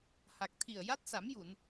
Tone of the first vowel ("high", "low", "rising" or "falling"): low